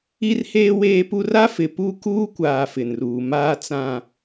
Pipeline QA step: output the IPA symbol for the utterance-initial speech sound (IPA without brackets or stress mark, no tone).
i